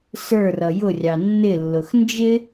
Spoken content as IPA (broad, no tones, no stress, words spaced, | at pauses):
sə˞rʌ jʊrʲɑ nːɪlːʊx nd͡ʒɪ